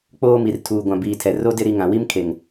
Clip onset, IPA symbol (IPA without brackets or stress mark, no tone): k͡p